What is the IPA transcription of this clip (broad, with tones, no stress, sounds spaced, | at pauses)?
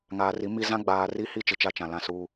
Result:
ŋ aː˨ r i˨˦ m i˦ z ã˦ ɡ͡b aː˨ r i˦ h i˦ t͡ʃ ɪ˨ t͡ʃ a˦ t͡ʃ ã˨ l ã˦˨ s uː˦